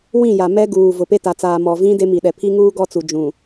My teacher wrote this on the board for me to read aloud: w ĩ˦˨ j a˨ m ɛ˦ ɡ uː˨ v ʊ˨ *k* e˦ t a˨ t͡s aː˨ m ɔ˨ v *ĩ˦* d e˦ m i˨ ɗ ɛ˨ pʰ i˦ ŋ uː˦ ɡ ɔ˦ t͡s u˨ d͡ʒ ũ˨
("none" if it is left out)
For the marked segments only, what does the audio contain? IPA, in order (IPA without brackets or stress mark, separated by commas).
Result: p, ĩ˦